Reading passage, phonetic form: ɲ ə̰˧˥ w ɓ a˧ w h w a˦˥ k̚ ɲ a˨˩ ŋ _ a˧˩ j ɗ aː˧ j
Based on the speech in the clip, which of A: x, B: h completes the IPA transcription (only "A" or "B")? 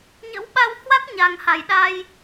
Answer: B